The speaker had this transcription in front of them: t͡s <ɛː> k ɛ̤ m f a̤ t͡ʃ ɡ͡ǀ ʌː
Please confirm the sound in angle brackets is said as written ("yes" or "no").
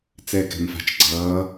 yes